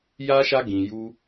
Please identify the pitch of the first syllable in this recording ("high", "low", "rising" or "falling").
high